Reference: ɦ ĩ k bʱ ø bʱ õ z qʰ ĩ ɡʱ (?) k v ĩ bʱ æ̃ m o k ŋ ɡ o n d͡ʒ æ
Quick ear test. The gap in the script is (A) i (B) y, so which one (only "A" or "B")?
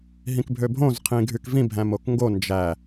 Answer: B